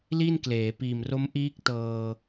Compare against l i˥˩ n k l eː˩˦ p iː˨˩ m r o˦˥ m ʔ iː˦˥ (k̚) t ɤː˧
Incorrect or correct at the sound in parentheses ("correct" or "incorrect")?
correct